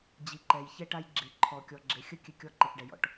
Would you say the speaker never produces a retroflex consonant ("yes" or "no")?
no